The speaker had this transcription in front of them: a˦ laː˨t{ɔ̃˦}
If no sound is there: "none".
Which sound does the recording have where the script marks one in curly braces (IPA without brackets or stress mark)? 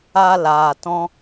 ɔ̃˦